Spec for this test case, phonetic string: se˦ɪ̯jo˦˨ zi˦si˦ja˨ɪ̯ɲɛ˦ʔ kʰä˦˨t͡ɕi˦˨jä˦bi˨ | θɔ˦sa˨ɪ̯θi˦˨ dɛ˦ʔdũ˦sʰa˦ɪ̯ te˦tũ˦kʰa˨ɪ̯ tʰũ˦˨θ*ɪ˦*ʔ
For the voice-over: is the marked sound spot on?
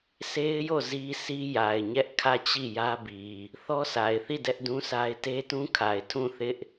yes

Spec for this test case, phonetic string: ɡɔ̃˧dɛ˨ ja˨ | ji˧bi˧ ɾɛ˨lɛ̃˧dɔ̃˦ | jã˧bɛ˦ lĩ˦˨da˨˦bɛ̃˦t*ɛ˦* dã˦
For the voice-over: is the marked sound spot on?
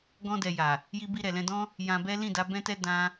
yes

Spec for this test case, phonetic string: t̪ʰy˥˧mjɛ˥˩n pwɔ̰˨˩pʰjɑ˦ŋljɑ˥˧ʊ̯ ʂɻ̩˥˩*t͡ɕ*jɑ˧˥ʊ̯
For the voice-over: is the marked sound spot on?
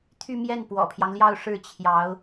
no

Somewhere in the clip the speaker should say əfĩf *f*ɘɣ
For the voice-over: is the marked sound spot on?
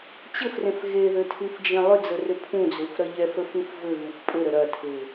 no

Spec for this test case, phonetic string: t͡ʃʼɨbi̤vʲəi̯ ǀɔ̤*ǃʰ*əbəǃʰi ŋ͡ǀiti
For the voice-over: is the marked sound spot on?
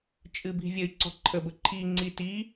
yes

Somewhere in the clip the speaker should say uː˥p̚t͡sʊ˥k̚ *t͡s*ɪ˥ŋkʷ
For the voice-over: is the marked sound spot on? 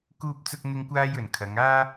no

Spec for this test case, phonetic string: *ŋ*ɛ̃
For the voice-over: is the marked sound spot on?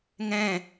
yes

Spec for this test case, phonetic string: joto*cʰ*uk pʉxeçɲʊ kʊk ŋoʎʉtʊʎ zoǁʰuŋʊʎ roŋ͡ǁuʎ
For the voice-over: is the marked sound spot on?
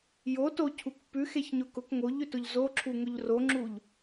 yes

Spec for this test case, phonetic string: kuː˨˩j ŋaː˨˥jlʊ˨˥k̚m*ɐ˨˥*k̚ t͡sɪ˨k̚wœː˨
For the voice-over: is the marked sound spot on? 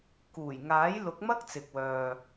no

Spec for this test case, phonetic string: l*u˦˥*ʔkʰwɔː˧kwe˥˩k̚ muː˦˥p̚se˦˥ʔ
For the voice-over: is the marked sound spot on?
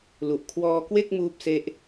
no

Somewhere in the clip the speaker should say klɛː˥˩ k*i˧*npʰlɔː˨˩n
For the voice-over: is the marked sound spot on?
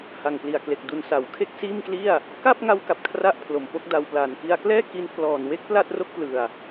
yes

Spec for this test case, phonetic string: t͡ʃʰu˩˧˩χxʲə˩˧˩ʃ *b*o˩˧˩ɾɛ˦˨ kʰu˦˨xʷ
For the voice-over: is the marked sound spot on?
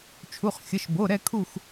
yes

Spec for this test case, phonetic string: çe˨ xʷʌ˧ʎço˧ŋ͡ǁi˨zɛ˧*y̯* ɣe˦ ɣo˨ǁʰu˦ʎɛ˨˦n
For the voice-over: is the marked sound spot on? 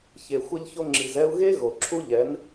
no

